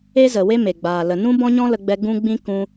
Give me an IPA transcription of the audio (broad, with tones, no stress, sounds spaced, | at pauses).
e˦ z ə˨ w e˦ m e˨ ɡ͡b aː˨ l ə˨ n ũ˦ b ɔ̃˦ ɲ ɔ̃˦ l ə˧ ɡ͡b ɛ˧ ɡ ũ˦ ɡ͡b ĩ˦ k ũ˧